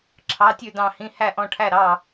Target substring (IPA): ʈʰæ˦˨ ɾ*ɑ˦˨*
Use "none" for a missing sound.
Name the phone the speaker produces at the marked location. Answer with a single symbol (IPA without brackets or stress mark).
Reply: ɑ˦˨